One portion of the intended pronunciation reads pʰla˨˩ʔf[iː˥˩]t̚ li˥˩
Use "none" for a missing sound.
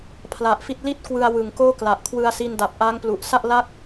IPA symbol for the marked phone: i˥˩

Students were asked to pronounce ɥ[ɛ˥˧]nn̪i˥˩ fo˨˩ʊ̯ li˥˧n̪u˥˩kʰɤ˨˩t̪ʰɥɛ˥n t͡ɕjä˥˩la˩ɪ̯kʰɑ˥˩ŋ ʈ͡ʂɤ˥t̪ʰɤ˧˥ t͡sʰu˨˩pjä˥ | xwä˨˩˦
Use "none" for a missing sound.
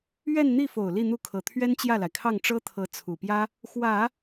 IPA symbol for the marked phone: ɛ˥˧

